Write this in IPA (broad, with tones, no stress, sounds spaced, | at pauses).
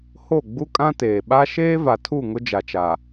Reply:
h o˦˨ ɡ͡b u˦ kʼ ã˦ t eː˨ ɓ a˦ ʃ eː˦ v a˨ tʰ u˦˨ ŋ ʊ˦ d͡ʒ a˨ t͡ʃ a˨